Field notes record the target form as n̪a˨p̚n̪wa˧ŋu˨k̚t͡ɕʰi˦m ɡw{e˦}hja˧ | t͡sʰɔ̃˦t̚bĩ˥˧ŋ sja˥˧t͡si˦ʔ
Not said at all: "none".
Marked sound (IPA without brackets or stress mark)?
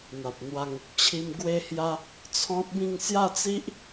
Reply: e˧